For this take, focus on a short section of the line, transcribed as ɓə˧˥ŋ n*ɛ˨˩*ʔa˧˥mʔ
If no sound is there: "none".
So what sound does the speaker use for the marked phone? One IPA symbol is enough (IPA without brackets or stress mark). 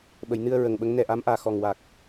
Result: ɛ˨˩